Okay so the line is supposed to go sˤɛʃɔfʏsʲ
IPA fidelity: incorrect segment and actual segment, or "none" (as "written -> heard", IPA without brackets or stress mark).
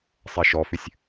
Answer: none